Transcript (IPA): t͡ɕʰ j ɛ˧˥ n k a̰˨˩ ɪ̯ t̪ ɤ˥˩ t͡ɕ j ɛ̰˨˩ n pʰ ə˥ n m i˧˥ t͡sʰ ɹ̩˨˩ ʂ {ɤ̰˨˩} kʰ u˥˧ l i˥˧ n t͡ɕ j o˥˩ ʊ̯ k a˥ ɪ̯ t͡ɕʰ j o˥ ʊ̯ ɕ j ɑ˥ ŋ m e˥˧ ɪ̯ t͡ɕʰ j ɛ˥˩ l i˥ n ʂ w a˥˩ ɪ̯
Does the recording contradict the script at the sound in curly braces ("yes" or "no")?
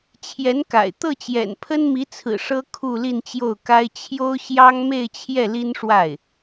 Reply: yes